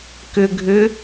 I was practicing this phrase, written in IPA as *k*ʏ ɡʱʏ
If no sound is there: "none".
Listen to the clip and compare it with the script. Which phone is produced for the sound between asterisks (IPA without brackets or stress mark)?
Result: k